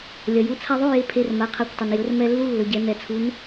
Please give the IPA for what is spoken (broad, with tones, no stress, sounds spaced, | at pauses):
lʲ ɐ˩ j u˩˧˩ t͡sʰ a˧ ðˤ o˧˥˧ j e˩˧˩ pʰ e˩˧˩ r m a˩˧ qʰ a˩˧˩ kʷ tˤ ɐ˩ n j ɵ˩˧ r m ɛ˧ lː u˧˥˧ lː ɵ˩ ɟ ɛ˩˧ n ɛ˩ t͡sʰ u˩˧ n